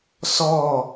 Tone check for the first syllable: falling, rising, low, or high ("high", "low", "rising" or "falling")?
falling